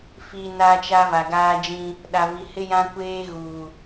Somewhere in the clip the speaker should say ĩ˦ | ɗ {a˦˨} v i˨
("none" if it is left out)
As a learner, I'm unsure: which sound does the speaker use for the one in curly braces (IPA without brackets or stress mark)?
a˨